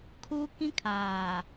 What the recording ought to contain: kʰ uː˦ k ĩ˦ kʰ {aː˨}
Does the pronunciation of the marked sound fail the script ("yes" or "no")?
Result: no